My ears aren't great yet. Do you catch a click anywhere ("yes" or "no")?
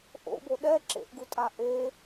yes